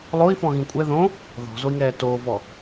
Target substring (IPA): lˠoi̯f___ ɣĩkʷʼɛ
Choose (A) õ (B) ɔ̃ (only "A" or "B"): B